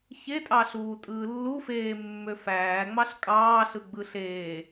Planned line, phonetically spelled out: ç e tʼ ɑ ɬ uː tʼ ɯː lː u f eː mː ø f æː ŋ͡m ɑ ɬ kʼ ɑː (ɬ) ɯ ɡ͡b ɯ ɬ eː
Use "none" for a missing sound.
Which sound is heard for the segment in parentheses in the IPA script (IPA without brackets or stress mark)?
ɬ